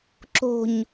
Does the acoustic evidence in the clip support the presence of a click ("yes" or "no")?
yes